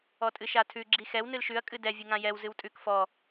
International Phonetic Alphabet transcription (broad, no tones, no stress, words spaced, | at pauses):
ɔtʼɨʃatʰʉ ɡ͡ǁixɛw nɨlʃʉɐ̯ kʼɨdɛ vʲɨŋãjɛw zɨwtʼʉk fɔ